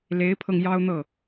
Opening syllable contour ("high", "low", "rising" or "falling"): rising